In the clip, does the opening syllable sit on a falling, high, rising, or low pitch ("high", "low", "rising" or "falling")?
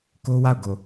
high